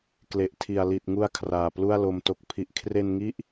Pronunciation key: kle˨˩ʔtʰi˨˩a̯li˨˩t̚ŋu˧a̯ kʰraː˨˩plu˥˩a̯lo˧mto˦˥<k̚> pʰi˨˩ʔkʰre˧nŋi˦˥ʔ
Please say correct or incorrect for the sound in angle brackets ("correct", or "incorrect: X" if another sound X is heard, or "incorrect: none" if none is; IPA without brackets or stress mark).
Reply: correct